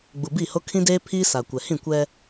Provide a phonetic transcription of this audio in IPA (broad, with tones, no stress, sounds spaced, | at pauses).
ɡ͡b u˨ b i˦˨ h o˦ kʰ ĩ˦ d eː˦ pʰ iː˦ s a˨ kʷ ɛ˨ h ĩ˦˨ kʷ ɛ˦